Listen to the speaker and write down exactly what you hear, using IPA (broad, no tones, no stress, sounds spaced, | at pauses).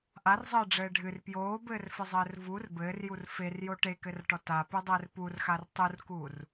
ʔ a r zˤ ɘː ɖ͡ʐ ɘː ɖʱ ɨ r p j oː b ɘː r f ɘ zˤ ɘː r v u r b ɘː r j u r f e r j o ʈ e k ɘ r ʈ ɔ t a p ɨ dˤ ɘː r p u r x a r tˤ u r k uː r